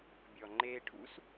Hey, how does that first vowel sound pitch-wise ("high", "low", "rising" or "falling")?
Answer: low